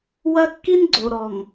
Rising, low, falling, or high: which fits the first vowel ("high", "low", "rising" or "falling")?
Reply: high